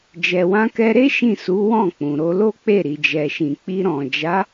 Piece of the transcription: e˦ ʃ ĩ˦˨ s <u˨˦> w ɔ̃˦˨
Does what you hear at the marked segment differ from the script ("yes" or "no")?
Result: no